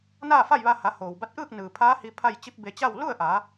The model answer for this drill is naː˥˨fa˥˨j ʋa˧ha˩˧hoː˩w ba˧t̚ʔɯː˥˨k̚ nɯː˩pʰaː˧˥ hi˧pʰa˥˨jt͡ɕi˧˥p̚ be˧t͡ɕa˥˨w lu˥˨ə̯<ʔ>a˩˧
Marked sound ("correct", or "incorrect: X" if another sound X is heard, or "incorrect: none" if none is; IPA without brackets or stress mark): correct